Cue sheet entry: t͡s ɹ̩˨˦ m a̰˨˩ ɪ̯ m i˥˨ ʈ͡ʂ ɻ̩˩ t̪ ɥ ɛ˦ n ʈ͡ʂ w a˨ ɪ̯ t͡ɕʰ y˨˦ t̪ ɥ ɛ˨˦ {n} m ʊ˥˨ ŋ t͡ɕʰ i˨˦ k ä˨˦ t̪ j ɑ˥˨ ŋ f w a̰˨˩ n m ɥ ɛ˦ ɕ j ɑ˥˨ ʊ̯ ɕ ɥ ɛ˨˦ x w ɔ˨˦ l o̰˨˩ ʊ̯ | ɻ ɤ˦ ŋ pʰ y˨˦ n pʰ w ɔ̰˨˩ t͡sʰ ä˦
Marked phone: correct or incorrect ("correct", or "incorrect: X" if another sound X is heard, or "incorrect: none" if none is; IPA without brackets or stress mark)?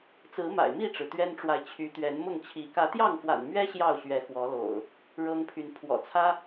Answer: correct